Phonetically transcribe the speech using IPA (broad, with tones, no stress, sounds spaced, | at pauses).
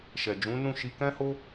ʃ ɛ˨ d͡ʒ ũ˨˦ n ũ˦˨ ʃ i˧ k ɛ̃˦ h o˦